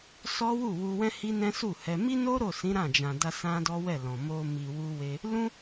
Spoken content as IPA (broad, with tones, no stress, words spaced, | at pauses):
sɔ˦ wu˦˨wu˧wɛ̃˦ hi˦nɛ̃˦su˦˨hɛ˧ mi˦no˦ ɾo˦˨sĩ˨˦ ɾã˦˨d͡ʒã˨da˧ sã˦dɔ˦wɛ˦˨lɔ̃˨ mo˧mi˨wu˧we˧ | lũ˦